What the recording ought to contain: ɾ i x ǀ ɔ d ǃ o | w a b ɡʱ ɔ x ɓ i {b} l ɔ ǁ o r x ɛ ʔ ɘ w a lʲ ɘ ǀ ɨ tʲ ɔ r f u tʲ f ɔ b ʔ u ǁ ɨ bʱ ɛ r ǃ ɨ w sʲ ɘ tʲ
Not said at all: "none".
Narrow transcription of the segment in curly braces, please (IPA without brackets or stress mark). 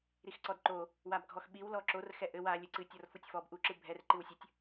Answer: w